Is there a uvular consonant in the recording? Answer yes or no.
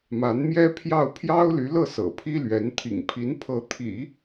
no